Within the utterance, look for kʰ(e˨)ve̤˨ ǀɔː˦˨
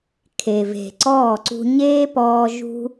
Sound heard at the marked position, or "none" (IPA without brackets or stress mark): e˨